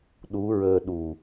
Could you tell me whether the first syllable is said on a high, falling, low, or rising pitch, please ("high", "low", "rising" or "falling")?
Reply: rising